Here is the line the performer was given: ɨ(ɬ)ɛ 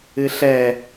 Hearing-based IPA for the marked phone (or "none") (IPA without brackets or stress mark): ɬ